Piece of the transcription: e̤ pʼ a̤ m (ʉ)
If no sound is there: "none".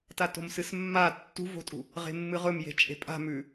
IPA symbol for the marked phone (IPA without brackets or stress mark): ʉ